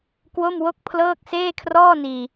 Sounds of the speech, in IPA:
k w o˥˩ m w o˥˩ k̚ pʰ l ɤː˥˩ k̚ s eː˥˩ kʰ r ɔː˥˩ n iː˧

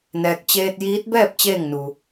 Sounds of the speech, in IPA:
n ɛː˧ k̚ t͡ɕ eː˧ t̚ j iː˧˥ t̚ b ɛː˥˨ p̚ t͡ɕ eː˥˨ ŋ n u˧

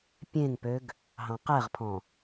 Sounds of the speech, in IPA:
pʲ ẽ ŋ p ø ɡ | ɦ ɑ̃ q ɛ ʁ pʰ ɔ̃

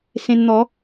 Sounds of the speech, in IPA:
s ẽ˧ n n̪ ɔ˨˦

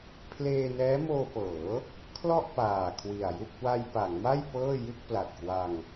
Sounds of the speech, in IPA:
pʰ l eː˧ n ɛː˦˥ m oː˧ p ɤː˩˦ | kʰ l ɔ˥˩ ʔ p aː˨˩ kʰ w i˨˩ a̯ j u˥˩ k̚ w a˧ j p a˩˦ ŋ m a˥˩ j p ɤː˥˩ j ɯ˥˩ k̚ p l a˨˩ t̚ k w a˧ ŋ

